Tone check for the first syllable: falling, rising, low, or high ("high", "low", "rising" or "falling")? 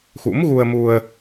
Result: rising